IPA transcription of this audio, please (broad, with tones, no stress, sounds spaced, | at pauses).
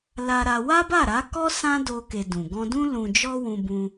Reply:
l a˧ ɾ a˧ w a˦ b a˦˨ ɾ a˨˦ k ɔ˦ s ã˦ d o˧ k e˨ d ũ˨ ɡ ɔ̃˧ d ũ˦ l ũ˧ d͡ʒ ɔ˦ w ũ˧ b ũ˧